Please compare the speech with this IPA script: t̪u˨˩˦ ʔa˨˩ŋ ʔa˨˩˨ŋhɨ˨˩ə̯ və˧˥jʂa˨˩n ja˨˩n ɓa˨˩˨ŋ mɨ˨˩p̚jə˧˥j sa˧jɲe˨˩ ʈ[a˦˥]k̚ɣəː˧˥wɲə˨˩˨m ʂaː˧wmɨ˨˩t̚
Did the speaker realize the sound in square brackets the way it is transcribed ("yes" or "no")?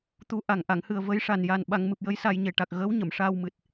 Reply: no